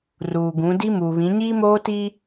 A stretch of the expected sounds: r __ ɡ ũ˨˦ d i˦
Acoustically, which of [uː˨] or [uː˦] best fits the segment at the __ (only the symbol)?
uː˨